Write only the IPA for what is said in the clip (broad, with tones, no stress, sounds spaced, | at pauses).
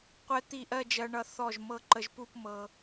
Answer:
qʷ ɛ˧ t̪ i˧˩ ʔ ɜ˥˧ d͡ʒ ɜ˧ ɳ ʌ˧ θ ɔ˧˩ ʒ m ɤ˧ ǃ ə˧ ʒ p u˥˧ p m ɤ˧